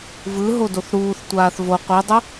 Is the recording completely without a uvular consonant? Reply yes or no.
no